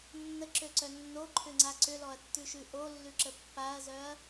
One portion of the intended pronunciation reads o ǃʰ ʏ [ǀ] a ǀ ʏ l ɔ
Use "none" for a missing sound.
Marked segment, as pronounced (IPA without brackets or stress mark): ŋ͡ǀ